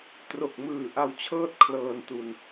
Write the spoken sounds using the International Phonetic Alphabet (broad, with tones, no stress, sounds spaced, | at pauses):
t r o˨˩ k̚ m ɯː˨˩ ʔ a˧ w t͡ɕʰ ɤː˥˩ t̚ kʰ l ɤː˧ n t u˧ n